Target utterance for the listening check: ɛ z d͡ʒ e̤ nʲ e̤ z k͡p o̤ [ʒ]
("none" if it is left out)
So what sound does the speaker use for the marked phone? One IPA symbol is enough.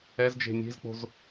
z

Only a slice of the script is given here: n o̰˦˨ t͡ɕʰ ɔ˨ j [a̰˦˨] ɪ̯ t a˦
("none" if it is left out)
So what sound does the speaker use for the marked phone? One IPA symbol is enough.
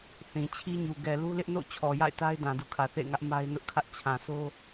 a̰˦˨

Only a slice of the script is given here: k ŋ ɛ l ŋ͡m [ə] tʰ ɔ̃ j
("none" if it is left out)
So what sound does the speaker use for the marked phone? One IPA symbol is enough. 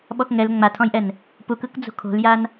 a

